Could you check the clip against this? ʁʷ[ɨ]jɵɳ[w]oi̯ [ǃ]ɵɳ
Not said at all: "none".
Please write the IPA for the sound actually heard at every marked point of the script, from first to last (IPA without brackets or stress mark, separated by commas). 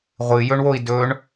ɨ, w, d